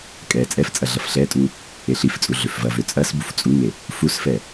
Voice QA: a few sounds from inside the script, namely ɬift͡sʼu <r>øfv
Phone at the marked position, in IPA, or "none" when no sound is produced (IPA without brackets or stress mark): ɮ